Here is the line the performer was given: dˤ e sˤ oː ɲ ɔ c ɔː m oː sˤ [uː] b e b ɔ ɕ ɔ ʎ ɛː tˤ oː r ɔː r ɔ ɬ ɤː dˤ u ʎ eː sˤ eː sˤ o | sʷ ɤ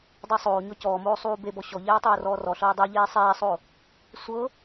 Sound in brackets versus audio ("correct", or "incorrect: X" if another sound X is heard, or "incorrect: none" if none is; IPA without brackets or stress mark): correct